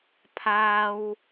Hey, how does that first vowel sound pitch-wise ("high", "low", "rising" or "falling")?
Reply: high